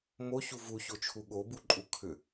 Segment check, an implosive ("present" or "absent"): present